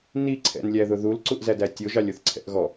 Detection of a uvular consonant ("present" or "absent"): absent